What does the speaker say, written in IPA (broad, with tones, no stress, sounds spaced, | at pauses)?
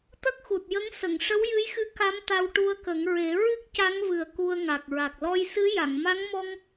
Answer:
t̪ ə˦˥ k̚ x u˨˩ t̚ j ə˧˥ ŋ s ə˨˩˨ ŋ ʂ ə˧˥ w j ɨ˧˥ j x ɨ˧˥ k a˧˥ m t̪ a˧ w ʈ u˧ ə̯ k ə˨˩˦ ŋ ɹ e˨˩˦ ɹ ɨ˦˥ k̚ c a˧˥ ŋ v ɨ˨˩ ə̯ k u˧ ə̯ ŋ a˨˩ k̚ ɹ a˨˩ k̚ l ɔ˧ j s ɨ˧˥ j a˨˩˨ ŋ m a˧˥ ŋ m ɔ˧ ŋ